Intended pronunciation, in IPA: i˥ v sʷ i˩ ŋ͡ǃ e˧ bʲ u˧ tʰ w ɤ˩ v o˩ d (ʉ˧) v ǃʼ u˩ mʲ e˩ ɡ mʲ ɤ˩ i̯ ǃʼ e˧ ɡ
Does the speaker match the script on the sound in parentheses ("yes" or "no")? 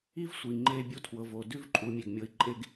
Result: no